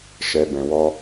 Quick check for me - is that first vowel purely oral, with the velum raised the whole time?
yes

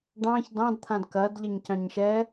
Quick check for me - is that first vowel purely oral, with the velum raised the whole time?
no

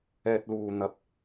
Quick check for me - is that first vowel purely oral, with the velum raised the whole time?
yes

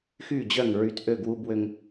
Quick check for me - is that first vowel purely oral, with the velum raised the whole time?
yes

